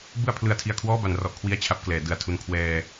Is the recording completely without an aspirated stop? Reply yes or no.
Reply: no